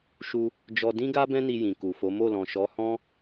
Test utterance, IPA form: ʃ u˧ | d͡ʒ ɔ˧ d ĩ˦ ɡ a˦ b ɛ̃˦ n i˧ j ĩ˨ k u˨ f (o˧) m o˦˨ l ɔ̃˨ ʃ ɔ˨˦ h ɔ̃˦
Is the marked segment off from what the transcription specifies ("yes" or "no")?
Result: yes